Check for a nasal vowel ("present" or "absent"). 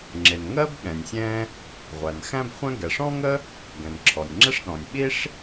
present